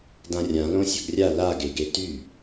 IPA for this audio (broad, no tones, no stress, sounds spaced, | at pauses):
d ã rʲ ã l õ sʲ ɵ ɡ rʲ a l a ɡ e ɡ e t y